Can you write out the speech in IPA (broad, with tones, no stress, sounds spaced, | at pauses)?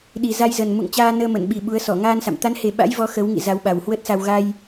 ɗ i˨˩ z a˧ j z ə˨˩ n m ṵ˧˨ ŋ t͡ɕ aː˧ n əː˧ m ə˧˩ n ɓ i˨˩ ɓ u˨˦ ə̯ s ɔ˧˩ ŋ aː˧ n s a̰˧˨ m t̪ a˨˦ n h e˨˩ ɓ a̰˧˥ j v ɔ˨˦ x ə˨˦ w ŋ ḭ˧˨ z a˨˦ w ɓ a˨˩ w h w ə˦˥ t̚ s a˧ w ɣ a˧ j